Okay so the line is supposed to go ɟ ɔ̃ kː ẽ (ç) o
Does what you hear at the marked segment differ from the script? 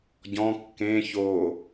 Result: no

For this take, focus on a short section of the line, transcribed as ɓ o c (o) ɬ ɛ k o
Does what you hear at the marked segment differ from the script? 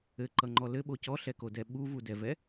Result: yes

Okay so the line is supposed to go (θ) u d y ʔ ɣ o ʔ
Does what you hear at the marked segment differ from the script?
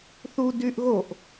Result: no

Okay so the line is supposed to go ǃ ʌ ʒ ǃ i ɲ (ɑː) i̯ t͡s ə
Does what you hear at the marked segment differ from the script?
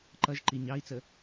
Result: yes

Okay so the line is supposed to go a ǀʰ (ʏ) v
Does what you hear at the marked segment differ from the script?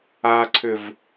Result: no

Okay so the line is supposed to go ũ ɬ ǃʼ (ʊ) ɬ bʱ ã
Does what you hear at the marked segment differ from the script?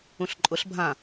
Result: no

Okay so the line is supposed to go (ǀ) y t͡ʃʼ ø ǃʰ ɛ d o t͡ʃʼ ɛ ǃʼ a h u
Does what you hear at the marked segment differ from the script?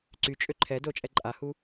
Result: no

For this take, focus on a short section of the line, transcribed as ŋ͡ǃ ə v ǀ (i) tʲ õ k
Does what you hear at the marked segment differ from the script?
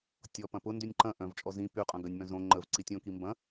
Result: no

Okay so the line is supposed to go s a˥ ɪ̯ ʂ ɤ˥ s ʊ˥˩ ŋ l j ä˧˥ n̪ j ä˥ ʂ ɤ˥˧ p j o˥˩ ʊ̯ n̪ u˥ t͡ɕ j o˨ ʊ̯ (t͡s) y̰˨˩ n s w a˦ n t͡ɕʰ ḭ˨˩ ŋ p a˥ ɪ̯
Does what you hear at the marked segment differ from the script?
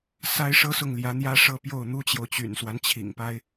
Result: yes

